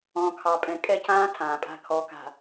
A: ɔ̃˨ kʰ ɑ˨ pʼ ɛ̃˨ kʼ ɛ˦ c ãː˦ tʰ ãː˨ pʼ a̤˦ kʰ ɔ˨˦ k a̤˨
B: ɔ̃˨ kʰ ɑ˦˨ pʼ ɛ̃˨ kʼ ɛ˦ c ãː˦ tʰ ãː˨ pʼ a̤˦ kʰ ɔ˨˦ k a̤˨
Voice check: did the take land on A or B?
A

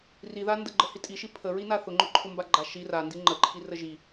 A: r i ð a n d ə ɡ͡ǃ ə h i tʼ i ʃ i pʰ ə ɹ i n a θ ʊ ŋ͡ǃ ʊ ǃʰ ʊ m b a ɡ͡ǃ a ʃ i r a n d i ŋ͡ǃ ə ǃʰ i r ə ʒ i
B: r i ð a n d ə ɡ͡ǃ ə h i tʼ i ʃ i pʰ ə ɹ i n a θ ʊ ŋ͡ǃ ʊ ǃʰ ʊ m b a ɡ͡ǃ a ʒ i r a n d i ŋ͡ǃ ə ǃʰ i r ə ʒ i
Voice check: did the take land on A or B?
A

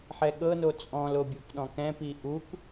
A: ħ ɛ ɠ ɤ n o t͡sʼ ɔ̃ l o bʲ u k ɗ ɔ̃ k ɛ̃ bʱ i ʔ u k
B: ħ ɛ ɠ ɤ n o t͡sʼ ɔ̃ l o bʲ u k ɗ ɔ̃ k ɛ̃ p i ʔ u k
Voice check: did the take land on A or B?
B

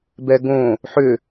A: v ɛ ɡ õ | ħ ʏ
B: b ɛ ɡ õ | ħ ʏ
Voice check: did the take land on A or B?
B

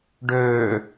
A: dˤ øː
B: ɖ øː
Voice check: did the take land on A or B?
B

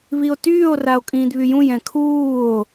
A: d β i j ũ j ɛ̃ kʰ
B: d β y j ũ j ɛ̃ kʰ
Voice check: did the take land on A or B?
B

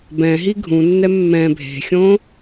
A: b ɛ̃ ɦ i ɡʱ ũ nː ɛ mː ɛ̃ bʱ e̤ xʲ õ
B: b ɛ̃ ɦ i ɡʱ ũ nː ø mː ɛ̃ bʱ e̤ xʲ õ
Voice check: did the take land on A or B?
A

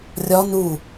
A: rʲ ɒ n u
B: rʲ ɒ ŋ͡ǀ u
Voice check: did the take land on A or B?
A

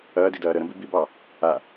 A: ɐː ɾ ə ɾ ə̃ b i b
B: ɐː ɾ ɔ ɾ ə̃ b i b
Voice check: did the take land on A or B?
A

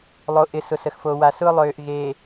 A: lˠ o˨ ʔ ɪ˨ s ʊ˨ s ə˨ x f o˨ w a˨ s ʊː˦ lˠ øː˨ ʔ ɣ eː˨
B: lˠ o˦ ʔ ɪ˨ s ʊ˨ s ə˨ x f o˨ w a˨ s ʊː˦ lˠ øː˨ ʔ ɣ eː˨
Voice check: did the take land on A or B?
A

